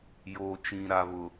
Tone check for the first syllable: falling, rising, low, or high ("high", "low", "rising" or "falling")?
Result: low